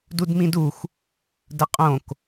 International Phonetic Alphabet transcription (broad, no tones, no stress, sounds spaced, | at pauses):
d u d m ĩ d u xʷ | d ə qʼ õ k